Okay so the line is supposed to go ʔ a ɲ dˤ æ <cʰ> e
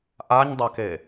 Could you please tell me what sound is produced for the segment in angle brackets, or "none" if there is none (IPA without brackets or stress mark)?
k